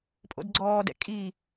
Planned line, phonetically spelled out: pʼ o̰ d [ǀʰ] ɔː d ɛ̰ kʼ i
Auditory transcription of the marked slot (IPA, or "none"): ɡ͡ǀ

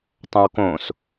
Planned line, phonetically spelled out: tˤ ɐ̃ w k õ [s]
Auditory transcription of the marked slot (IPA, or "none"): s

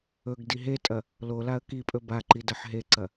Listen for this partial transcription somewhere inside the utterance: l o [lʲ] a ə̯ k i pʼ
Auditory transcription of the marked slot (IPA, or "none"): l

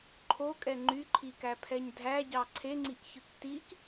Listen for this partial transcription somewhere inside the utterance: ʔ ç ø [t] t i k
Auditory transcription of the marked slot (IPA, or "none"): k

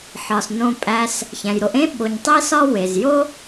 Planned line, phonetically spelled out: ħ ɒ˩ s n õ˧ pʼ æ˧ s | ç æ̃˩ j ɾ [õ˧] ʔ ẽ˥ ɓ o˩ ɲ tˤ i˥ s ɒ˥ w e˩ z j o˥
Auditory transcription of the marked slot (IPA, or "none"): o˧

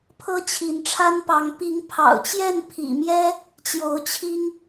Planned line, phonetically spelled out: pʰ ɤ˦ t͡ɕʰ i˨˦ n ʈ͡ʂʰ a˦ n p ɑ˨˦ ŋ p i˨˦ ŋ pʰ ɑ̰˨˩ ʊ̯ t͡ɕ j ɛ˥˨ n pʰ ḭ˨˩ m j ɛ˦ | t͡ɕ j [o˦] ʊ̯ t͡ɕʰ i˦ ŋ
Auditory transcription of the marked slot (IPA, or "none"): o˨˦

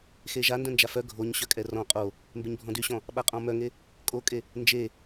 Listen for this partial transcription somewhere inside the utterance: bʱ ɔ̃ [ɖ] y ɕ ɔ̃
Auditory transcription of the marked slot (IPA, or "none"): d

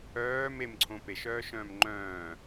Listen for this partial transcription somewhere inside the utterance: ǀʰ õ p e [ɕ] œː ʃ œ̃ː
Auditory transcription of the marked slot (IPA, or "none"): ʃ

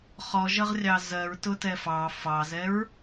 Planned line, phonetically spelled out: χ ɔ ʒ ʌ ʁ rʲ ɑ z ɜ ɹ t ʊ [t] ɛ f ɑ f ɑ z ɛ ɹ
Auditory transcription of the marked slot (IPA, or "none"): t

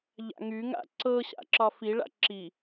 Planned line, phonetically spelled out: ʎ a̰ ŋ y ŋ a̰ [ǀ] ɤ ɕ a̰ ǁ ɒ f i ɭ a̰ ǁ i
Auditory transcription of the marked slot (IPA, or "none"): ǀ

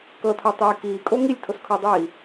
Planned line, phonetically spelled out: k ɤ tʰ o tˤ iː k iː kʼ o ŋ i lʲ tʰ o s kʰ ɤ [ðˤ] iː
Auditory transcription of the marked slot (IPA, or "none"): dˤ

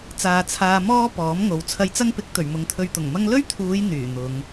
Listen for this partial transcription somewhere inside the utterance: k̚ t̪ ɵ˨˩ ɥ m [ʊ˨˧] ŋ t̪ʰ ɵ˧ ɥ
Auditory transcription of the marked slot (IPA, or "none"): ʊ˨˧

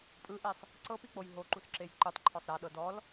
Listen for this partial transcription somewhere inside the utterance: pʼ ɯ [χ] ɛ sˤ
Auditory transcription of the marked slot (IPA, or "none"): ʔ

